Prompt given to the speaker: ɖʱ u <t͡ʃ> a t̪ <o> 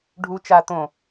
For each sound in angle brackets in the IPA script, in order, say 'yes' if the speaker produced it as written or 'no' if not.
yes, no

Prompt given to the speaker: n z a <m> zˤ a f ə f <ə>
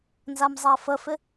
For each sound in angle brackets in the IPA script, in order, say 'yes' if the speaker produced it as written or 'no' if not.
yes, no

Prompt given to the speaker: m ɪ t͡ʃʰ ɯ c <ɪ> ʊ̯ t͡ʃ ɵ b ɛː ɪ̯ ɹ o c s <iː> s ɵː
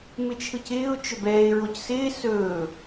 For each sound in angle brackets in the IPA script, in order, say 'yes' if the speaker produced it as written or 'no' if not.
no, no

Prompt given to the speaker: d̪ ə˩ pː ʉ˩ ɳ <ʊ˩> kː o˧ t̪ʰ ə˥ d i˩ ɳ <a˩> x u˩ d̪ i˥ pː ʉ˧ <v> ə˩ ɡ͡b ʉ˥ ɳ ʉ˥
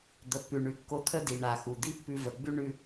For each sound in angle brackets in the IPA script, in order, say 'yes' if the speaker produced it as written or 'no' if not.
no, yes, yes

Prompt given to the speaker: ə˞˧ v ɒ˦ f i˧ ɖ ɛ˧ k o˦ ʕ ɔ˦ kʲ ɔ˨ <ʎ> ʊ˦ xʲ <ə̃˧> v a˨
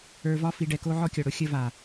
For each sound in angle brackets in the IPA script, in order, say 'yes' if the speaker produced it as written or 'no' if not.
no, no

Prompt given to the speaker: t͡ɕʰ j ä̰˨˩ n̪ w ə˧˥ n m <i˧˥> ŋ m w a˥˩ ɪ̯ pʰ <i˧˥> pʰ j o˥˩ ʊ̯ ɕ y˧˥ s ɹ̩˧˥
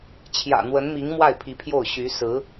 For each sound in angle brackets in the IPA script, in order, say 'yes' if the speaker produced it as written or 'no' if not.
yes, yes

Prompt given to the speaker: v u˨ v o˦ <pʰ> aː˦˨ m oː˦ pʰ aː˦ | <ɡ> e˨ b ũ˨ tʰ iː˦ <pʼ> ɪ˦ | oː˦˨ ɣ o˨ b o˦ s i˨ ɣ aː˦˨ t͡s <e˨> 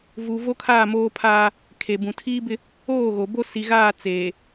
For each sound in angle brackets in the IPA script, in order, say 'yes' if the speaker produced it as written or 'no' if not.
no, no, no, no

